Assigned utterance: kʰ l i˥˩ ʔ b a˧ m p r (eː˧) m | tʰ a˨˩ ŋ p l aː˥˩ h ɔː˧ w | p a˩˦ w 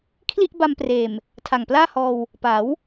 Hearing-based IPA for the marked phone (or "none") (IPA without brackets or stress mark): eː˨˩